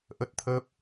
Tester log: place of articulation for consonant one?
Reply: glottal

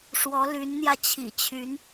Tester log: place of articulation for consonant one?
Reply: retroflex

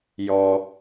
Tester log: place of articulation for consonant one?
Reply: palatal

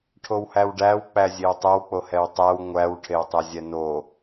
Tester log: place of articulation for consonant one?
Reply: retroflex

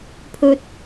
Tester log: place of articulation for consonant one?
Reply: labial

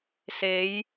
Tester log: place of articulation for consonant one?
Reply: alveolar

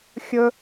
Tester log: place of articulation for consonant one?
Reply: velar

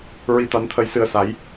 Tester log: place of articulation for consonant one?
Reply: alveolar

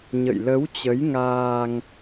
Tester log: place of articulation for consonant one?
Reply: palatal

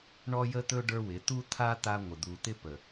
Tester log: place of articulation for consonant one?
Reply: retroflex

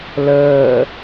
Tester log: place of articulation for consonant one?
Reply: alveolar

